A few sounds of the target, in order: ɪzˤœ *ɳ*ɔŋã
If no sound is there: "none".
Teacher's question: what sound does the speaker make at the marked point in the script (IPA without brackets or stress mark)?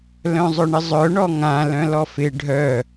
ɳ